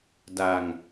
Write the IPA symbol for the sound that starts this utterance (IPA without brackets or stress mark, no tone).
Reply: d